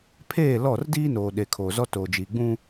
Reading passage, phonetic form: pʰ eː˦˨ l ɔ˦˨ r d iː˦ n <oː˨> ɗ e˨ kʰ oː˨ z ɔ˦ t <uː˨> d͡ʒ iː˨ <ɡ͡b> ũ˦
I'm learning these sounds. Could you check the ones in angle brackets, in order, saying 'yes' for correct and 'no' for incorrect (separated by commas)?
yes, no, yes